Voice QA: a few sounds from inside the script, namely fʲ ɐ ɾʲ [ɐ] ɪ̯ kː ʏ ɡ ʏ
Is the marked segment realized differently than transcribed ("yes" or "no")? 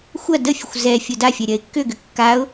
no